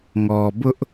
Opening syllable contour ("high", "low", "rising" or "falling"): low